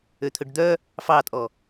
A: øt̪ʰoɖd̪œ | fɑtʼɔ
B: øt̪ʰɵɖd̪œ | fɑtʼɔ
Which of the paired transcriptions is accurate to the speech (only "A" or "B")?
B